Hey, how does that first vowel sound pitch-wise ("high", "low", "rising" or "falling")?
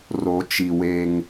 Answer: rising